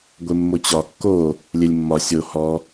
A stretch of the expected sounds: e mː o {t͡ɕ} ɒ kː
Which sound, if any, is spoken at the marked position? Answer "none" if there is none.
t͡ɕ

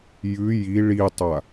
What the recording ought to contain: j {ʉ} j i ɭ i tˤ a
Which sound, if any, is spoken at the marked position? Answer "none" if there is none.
ʉ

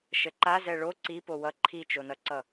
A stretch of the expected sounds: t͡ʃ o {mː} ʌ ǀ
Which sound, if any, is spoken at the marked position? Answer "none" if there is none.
n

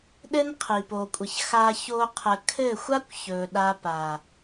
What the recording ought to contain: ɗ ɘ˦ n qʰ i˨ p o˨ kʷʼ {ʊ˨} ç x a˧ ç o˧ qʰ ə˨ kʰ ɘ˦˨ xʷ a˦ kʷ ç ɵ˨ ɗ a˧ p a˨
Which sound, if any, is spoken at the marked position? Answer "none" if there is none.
ə˨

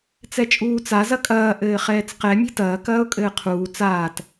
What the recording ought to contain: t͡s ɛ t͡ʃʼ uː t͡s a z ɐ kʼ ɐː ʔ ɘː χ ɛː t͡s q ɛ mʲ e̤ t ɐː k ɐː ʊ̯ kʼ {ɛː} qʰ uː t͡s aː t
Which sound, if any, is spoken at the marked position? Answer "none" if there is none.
ɘː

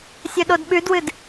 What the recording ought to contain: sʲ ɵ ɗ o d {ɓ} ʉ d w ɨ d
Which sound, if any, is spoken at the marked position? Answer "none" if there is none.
ɓ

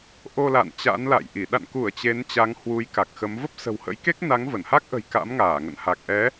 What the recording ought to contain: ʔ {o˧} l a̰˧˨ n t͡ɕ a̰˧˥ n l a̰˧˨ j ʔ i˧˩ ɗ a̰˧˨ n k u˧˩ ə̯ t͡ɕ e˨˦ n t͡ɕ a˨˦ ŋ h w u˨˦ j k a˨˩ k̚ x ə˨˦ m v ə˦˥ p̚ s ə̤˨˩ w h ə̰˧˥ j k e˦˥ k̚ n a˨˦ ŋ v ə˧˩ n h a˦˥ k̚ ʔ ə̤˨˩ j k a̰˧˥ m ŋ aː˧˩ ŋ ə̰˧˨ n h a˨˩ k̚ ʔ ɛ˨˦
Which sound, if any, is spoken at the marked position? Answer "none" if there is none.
o˧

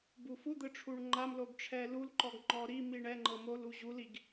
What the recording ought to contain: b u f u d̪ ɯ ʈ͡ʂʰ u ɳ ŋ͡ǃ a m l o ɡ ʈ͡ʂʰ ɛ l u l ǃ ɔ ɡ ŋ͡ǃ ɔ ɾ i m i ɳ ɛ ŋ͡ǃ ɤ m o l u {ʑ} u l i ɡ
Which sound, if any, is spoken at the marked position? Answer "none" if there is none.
ʑ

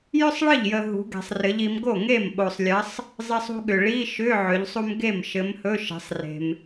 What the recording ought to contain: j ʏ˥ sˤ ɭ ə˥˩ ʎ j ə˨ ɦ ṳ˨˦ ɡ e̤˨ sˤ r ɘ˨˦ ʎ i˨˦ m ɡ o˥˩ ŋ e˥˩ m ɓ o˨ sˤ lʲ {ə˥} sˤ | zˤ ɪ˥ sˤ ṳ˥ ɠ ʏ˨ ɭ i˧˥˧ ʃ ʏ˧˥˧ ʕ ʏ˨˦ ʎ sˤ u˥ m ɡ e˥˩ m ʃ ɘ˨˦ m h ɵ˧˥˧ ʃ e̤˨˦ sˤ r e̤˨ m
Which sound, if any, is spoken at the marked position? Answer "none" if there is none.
ə˨˦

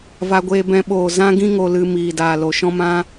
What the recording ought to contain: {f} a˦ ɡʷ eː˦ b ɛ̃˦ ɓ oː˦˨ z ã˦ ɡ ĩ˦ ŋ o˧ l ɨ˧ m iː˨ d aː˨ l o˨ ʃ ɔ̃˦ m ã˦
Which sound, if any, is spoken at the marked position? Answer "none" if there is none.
v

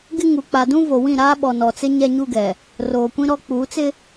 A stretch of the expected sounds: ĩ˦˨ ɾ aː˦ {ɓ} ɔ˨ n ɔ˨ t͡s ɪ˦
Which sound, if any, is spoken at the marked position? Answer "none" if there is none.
ɓ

